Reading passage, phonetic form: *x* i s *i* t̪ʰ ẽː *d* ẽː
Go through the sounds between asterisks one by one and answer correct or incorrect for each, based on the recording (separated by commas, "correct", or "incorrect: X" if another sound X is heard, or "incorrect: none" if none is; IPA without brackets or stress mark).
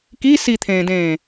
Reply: incorrect: k, correct, correct